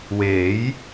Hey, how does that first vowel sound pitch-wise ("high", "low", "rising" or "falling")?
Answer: rising